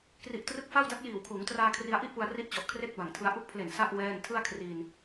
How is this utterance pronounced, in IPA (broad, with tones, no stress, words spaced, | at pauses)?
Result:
kri˨˩ʔtrɯ˦˥k̚fa˥˩wda˦˥t̚ jiː˨˩wkʰuː˩˦ŋtraː˧ kʰri˧a̯ʔi˥˩ʔpu˧a̯ ri˦˥ʔt͡ɕɔ˨˩ʔ kʰre˥˩k̚ba˨˩ŋtʰɯ˧a̯ ʔu˦˥k̚pʰle˨˩n sa˥˩ʔ wɛː˥˩n tʰɯ˥˩a̯kʰriː˧n